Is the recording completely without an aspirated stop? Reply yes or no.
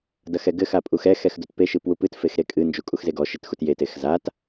yes